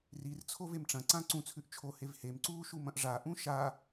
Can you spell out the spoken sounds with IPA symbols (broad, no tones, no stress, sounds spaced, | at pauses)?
r i r t͡sʰ o v e m ʈ͡ʂ ɐ̃ ǀ ã ǀ ũ t͡sʰ ʉ ʔ t͡ʃʰ o h e v h e m ǀ uː ʃ u m ɐ̃ ʔ ʐ a ʔ ũ ʃ a